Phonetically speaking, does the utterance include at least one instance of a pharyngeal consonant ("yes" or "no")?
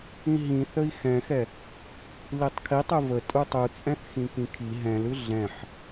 yes